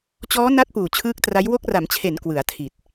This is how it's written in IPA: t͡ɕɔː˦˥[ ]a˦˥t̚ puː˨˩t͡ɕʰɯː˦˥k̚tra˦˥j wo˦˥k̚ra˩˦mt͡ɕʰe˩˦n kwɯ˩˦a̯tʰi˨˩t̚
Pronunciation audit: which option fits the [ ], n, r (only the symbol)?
n